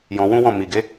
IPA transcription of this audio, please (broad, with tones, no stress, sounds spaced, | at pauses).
j ɔ̃˧ w ũ˦ w ɔ̃˦˨ m i˨ ɡ e˨˦